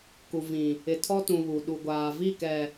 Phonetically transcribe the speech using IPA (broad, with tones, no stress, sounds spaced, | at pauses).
k u˨ v ĩ˨ | ɪ˨ tʰ ɔ˦ t ũ˨ β u˨ ɗ u˨ ɡʷ aː˨ v i˦˨ k ɛ˨